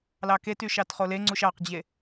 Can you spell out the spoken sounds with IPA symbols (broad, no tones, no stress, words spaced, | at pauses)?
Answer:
lɑkety ʃɑtχoleŋ͡ǀuʃ ɑqd͡ʑe